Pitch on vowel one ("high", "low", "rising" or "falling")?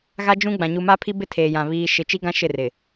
high